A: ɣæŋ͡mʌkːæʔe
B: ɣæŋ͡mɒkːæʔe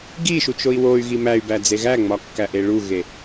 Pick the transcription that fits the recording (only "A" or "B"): B